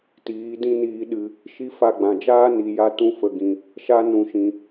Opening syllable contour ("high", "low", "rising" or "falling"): rising